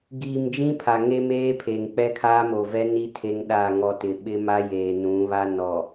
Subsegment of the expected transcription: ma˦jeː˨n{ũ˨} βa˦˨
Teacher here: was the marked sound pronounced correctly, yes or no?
no